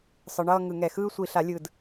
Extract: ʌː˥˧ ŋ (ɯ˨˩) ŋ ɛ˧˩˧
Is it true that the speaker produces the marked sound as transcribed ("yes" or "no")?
no